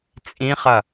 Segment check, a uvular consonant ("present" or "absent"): present